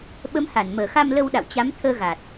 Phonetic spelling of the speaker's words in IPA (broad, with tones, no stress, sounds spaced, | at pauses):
ɓ ə˨˦ m h a˧˩ n m əː˧˩ x a˧ m l ə˧ w ɗ a̰˧˨ w t͡ɕ a˨˦ m t̪ʰ əː˧ ɣ a˨˩ t̚